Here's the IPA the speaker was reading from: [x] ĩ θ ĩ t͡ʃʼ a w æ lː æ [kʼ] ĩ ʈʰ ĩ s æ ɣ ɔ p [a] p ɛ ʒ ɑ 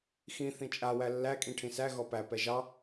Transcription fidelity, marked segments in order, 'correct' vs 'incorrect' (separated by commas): correct, correct, incorrect